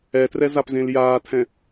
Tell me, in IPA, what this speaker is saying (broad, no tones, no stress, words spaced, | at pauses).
ɛtrɛ zapzẽljaːtʰɛ̃